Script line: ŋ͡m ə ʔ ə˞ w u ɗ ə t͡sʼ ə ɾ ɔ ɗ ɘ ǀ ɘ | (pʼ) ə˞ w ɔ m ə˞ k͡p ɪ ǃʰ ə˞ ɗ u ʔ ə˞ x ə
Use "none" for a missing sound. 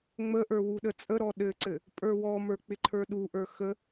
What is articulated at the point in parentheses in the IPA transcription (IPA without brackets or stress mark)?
pʼ